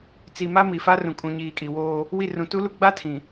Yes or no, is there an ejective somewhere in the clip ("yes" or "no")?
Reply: yes